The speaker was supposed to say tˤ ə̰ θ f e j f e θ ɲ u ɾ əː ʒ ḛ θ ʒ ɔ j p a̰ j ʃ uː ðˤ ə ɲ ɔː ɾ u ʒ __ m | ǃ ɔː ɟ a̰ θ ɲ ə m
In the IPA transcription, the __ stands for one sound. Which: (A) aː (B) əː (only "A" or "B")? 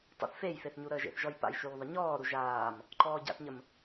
A